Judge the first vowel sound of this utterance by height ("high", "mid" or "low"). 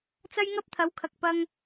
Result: low